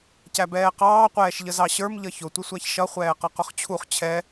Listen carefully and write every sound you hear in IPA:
cæbɛːqɑː qʷɛːʃʎəzɑɕə˞m ʎʌçʊ tʷɪsʷæçʃʌ χʷɛːqʌqʊχt͡ɕʰuχ t͡ɕʰɛ

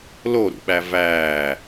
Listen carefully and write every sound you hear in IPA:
loɾṵɓæ væː

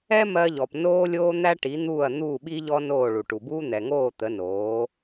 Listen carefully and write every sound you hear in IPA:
ɛ˥ mɜ˧ʎɔ˩p noː˥lʲoː˥ n̪æ˥ʈi˩˥n̪uː˥˩ɐ̯n̪uː˥˩ ɓi˥ʎɔ˥noː˥˩ ɭu˩ʈu˩buː˥ n̪ɛ˩ŋoː˥˩ t̪ə˩˥noː˩˥

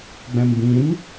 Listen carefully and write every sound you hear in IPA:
ɡ͡bɛ̃mbĩm

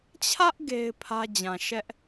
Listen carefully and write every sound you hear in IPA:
t͡ɕʰä˦ʔ ɡe˦ɪ̯pʰä˦d͡ʑã˨ ʃɛ˦ʔ

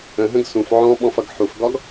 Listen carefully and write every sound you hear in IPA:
ə̃ɦə̃ɡ sũf ʕɔ̃ɓɔ̃fʌɡ ħufɡɒɡ

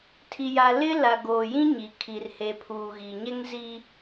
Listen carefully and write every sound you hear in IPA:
tʰi˨ja˨ lɪ˦ la˨ ɡoː˨jĩ˦ ɲi˨ kʰi˨r he˨pʰuː˨ɣi˨ɲɛ˦ŋ zi˦

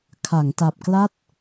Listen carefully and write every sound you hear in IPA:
kʰa˩˦ŋta˨˩p̚kla˥˩t̚

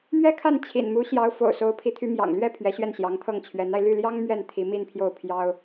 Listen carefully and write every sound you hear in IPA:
mɥɛ˥kʰa˥˩n t͡ɕʰḭ˨˩nmu˧˥ ɕjɑ˧˥ʊ̯ fo̰˨˩ʊ̯so˧˥ʊ̯pʰi˧˥t̪ʰy˧˥ mjɑ̰˨˩ŋlɥɛ˥˩ pʰɥɛ˧˥ɕɥɛ˥˩nɕjɑ˧˥ŋt̪ʰɤ˥˩ŋ t͡ɕʰɥɛ˧˥na˧ɪ̯ ly˥˩ljɑ˥ŋ mɥɛ˥˩nt̪ʰi˧˥mi˥˧npʰjo˥˩ʊ̯ pʰjɑ˥ʊ̯

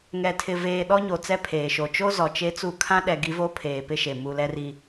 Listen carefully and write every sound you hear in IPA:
ŋɛ˨ tʰɪ˨veː˨ ɗɔ˦ɲo˨t͡sɛ˦pʰeː˨ ʃo˨t͡ʃo˦zɔ˨ t͡ʃe˦t͡su˦ kʰã˦ ɗɛ˦ ɡi˦vo˦pʰeː˨ pɪ˦ʃe˨ mu˨ lɛ˦ri˦

